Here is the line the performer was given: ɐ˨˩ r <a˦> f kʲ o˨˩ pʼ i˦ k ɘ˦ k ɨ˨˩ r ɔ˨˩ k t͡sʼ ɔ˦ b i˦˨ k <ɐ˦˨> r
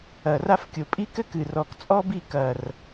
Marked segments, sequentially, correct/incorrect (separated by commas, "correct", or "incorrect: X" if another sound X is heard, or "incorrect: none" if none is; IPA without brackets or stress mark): correct, incorrect: ɐ˨˩